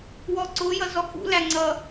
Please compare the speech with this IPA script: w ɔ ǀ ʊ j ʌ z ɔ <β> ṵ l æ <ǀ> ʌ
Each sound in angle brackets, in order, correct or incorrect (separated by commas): incorrect, incorrect